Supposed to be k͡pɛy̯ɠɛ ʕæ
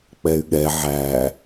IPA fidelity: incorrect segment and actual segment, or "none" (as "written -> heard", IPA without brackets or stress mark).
none